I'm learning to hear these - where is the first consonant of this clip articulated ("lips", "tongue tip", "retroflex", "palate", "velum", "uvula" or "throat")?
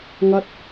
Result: velum